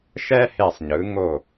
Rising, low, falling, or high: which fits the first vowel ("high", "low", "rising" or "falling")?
high